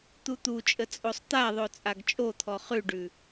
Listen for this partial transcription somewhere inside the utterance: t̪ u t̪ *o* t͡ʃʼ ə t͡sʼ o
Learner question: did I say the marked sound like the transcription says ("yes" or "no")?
no